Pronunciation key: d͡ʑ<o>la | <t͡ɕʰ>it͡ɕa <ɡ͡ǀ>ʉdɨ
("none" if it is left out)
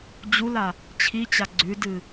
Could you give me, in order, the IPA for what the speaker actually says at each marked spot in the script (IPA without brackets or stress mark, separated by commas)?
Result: u, t͡ɕʰ, ɡ͡ǀ